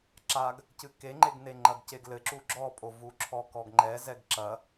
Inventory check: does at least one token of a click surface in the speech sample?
yes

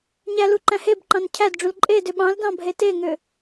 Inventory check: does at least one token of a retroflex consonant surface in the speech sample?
yes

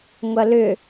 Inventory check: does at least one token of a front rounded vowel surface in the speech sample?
yes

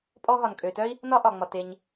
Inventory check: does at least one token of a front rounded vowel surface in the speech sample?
yes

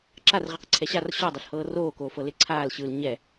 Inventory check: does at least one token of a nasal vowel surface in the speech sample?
no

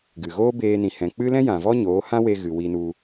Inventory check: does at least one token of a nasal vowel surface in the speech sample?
yes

